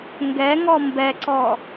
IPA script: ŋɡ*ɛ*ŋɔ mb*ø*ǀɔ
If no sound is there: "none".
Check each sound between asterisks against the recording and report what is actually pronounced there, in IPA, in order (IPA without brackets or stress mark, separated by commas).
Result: ɛ, ɛ